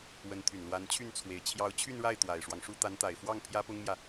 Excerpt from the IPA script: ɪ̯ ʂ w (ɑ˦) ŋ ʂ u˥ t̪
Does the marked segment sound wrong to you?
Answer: no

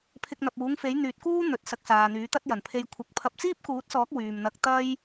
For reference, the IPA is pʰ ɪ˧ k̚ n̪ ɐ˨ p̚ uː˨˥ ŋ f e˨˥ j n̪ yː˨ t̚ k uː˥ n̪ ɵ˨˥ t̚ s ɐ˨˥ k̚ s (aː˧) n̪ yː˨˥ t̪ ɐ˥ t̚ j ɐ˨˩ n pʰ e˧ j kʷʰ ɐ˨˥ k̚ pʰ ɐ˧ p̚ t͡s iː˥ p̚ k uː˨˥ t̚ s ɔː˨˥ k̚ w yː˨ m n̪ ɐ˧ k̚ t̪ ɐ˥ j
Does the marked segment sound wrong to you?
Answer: yes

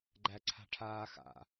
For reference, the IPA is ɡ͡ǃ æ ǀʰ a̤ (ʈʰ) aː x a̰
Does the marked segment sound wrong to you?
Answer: no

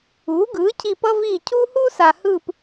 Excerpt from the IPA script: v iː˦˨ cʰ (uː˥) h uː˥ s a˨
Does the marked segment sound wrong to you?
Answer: no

